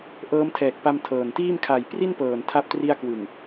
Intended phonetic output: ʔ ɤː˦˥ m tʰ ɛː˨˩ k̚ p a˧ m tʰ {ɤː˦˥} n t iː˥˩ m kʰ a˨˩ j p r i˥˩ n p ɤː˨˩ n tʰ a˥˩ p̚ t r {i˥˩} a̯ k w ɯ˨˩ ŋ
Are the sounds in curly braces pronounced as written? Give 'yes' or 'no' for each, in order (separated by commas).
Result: no, yes